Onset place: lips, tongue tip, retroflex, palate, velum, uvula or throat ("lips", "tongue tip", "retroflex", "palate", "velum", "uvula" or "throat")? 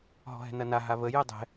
throat